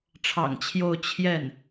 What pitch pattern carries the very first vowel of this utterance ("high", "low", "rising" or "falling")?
low